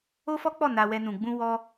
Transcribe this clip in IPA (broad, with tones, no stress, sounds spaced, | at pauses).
o˦ f ɔ˦ k͡p ɔ˦˨ n a˧ w ɛ˧ n ũ˨ ɡ͡b ũ˧ w ɔ˦